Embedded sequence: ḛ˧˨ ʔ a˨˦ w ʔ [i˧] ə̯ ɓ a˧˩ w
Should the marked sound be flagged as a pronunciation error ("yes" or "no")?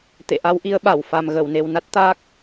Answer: yes